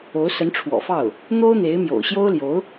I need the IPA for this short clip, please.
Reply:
o˧˥ ʊ̯ s ə˧˥ n ʈ͡ʂʰ w ɔ̰˨˩ f ɑ˥˩ ʊ̯ | n̪ o˥ ʊ̯ n̪ e˧˥ ɪ̯ m j o̰˨˩ ʊ̯ ɕ j o˥ ʊ̯ l j o˧˥ ʊ̯

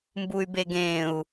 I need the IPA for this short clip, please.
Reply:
m b u y̯ b e ɡ ẽː u̯

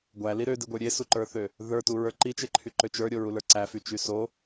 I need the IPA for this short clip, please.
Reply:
ɡʷ æ l i ɾ ø d i ɡʷ ə˞ ɾʲ e s u ǃ ə˞ θ ø | ð ə˞ t u ɹ ə˞ ǃ i t͡ʃ e ǃʰ y ǃ ø t͡ʃ ə˞ ɾʲ o ɹ u l ə˞ ǀ æ f y t͡ʃ y s o

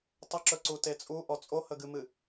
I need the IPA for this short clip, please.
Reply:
tˤ ə ǁ ɵ ǀ u t e t͡sʼ u ʔ ɔ t͡sʼ o h ə ɡ ɨ m ɨ

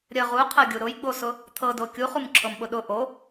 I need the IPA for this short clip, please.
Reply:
ɾʲ ə ʁ u qʰ ɤ ɡʲ u ɾ ʊ j ɡ͡b o s ʊ | t̪ʰ ɤ d o kʲ u χ u m ǁʰ ɤ m ɓ ʊ ɗ ʊ ʔ o

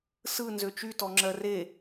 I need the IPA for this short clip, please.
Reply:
s ɯ n z ø t͡ʃ y t ɔ ŋ͡ǁ ɜ r e

